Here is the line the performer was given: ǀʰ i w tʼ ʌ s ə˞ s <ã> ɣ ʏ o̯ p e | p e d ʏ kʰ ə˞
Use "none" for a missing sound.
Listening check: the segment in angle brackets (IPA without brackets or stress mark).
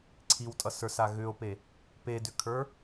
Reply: a